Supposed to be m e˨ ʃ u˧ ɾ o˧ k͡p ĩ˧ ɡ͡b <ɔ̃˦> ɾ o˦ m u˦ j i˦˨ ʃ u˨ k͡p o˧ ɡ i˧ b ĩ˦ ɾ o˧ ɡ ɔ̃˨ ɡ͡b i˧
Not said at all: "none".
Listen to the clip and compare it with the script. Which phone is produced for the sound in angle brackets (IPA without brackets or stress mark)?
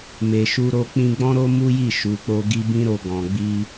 ɔ̃˦